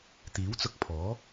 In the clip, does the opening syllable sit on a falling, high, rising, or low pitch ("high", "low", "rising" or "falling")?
rising